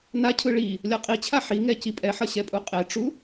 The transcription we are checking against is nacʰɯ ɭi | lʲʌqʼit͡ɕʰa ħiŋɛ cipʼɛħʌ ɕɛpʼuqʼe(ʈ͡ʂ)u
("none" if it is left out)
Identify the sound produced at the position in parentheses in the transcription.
ʈ͡ʂ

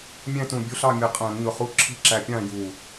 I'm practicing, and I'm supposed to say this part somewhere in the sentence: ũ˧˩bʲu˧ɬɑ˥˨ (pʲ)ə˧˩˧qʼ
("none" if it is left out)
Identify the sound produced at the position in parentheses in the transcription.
mʲ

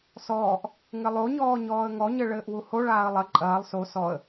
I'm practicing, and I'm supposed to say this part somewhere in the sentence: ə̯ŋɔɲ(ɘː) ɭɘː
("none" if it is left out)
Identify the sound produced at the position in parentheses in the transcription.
ɘ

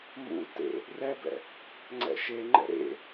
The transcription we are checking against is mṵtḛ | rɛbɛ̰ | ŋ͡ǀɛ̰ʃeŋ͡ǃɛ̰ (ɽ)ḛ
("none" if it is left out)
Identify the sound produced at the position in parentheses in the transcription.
ɾ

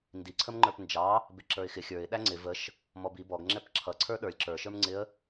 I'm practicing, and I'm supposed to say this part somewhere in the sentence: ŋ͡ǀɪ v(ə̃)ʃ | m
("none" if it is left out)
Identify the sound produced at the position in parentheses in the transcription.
ə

